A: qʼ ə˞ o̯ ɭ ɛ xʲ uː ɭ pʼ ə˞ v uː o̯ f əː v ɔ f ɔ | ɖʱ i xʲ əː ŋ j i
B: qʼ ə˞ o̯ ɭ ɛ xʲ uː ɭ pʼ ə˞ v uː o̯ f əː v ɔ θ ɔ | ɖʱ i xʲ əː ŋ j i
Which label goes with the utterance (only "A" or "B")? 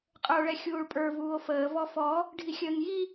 A